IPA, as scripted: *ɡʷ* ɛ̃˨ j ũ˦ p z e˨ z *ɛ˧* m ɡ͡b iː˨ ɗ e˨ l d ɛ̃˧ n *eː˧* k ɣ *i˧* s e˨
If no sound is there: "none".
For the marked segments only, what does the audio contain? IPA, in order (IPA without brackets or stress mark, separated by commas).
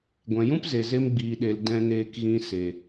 ɡʷ, e˧, eː˧, ĩ˧